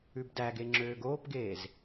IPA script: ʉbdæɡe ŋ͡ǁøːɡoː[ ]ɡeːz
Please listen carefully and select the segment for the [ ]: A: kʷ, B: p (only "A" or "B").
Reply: B